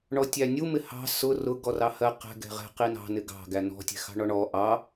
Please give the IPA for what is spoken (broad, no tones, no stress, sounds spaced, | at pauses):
ɳ ɔ tʲ æ nʲ u m ɪ h ɑ̤ s ʊ r ʊ ɡ ɔ r ɑ h ɜ q ɛ̤ ɡ ɛ̤ ʁ ɛ̤ q i n ɑ̤ n ɪ ɡ ɑ̤ ɡ æ n ɔ̤ tʲ ɛ̤ x ɑ̤ ɳ ɔ ɳ ɔ ʔ ɑ